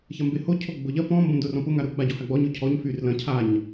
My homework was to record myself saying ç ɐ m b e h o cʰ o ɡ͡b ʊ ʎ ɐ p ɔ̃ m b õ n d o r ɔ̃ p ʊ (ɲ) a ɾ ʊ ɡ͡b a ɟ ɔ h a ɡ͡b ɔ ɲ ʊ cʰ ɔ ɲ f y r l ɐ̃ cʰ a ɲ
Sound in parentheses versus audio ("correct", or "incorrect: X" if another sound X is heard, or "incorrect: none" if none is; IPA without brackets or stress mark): incorrect: ŋ